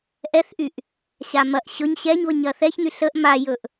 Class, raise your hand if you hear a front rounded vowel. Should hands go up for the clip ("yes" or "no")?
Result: yes